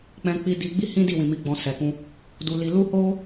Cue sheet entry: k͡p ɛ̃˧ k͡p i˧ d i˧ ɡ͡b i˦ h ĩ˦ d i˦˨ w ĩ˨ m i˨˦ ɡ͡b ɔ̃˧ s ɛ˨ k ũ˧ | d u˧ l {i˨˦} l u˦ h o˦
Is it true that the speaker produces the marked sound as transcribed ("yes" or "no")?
no